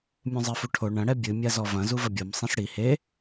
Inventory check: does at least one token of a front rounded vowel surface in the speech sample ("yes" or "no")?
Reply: no